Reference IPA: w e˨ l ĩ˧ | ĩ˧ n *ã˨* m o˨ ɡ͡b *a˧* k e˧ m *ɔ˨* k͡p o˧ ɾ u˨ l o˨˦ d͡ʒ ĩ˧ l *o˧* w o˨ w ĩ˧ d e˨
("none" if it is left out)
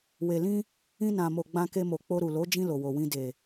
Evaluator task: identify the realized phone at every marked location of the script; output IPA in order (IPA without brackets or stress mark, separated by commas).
ã˨, ã˧, o˨, o˨